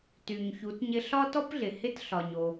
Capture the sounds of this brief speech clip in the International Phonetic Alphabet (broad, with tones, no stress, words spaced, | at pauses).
ty˩ɲçu˩˧tɲɪ˧ ɬɒ˥tɔ˥pɮɪ˩ hɪ˥tɬɒ˩ɲo˩